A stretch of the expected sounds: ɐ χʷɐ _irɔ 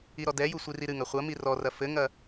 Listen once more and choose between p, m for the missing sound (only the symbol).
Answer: m